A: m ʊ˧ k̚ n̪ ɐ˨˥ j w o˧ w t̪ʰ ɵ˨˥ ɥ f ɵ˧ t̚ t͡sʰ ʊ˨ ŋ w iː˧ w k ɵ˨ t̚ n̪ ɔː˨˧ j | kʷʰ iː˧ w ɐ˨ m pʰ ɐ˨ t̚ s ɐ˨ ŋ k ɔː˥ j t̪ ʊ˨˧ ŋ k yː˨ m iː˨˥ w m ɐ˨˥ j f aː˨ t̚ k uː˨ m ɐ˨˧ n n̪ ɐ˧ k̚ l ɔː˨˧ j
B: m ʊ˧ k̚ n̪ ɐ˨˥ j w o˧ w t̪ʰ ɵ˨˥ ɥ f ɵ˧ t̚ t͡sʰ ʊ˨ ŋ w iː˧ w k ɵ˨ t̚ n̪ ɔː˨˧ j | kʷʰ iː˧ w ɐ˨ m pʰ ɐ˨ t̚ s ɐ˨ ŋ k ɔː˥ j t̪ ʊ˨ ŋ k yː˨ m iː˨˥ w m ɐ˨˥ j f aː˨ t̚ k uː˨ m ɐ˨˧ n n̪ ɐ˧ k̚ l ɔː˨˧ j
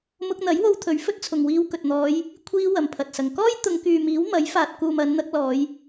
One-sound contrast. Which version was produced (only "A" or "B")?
A